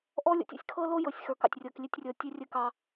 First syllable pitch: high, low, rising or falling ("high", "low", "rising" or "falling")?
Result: high